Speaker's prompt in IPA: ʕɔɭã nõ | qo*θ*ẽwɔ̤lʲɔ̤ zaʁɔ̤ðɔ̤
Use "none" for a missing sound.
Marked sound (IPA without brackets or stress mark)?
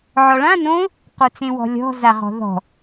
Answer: t͡s